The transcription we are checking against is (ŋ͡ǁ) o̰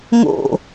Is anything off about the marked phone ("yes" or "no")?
yes